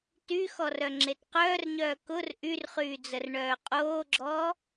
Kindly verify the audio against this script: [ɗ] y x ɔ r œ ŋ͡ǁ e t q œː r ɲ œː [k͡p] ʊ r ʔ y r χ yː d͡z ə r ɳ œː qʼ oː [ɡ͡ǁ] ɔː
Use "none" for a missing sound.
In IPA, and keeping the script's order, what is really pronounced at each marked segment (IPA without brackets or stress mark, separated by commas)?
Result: t, k, ɡ͡ǁ